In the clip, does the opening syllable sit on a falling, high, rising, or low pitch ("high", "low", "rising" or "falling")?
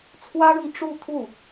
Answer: high